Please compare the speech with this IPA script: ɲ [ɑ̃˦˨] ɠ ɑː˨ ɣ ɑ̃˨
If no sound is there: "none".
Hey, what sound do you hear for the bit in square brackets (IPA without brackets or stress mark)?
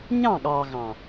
ɑ̃˦˨